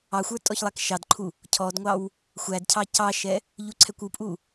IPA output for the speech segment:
ɑxʷə˞ tʼɔçlˠækʃɑdǃʰu | cʰɔdŋʷɑw | xʷædcʰɑ cɑʃɛ | ʎuǀʰɛkʷupʼu

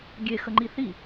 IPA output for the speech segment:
ɡʲexəŋ͡ǃi θi

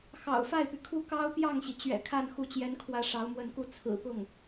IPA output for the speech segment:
xɑ̰˨˩ʊ̯ fa˥˩ɪ̯py˩kʰu˥˩ kɑ˥ʊ̯pjɑ˥˩ŋɕi˩ t͡ɕɥɛ̰˨˩kʰa˥˩n xu˧˥ t͡ɕjɛ˧˥nkʰwä˧˥ ʂɑ˧˥ʊ̯mwə˥˩nku˥ t͡sʰɹ̩˨˩pʊ˥˩ŋ

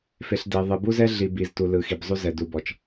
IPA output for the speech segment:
fe˨ɬde˨ ðˤɯ˨ bu˦zɛ˦ɮi˨ bi˨z tu˨lɯ˨xi˨b zˤu˦zɛ˨ du˨bɔ˨t͡ʃ

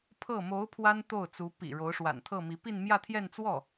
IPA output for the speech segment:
pʰɤ˥˩ mo˧˥ʊ̯ pʰwa˥nt̪o˥˩ʊ̯t͡su˧˥ pḭ˨˩ ɻo˧˥ʊ̯ʂwa̰˨˩nt̪ʰɤ˥˩mi˧˥ pi˥˧nmjä˥˧t̪ʰjɛ˥˧n t͡swɔ˥˩

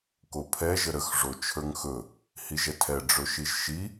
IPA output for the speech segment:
kopʰɛ ʒəɾəx ʐot͡ʃʰə˞ŋxɵ | hiʒɛtʰɛ ɖ͡ʐɵʃiʒʃi

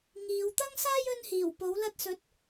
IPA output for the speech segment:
ŋiː˨˧w t̪ɐ˥ŋsaː˥j ɵ˥n hiː˨˩wpo˨˥w lɐ˧t̚sɵ˨˥t̚

